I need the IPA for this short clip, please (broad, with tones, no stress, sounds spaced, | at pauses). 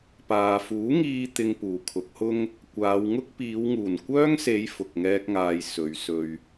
p aː˨ f uː˨˥ ŋ iː˧ t̪ ɪ˧ ŋ p uː˨˩ kʰ ʊ˨˥ k̚ h ʊ˥ ŋ | kʷ aː˨˧ w ŋ ʊ˥ k̚ p iː˨˧ w ŋ uː˨˩ n kʷ œː˥ ŋ s e˨˧ j f ʊ˨ k̚ ŋ ɛː˧ k̚ ŋ aː˨ j s ɵ˨˧ ɥ s ɵ˧ ɥ